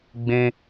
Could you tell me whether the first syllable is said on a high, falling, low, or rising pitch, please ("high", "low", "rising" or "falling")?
low